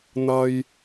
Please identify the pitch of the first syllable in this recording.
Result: low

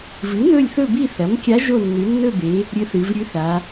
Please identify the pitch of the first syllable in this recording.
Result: rising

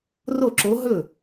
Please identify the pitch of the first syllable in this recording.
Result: falling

